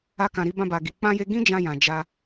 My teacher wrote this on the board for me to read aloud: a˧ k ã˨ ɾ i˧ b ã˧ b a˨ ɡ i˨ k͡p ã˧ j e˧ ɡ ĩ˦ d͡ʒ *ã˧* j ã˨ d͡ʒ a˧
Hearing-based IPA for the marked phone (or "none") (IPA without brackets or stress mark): ã˧